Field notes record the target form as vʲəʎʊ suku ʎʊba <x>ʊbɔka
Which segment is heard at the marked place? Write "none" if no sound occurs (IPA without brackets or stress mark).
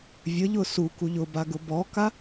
ɡ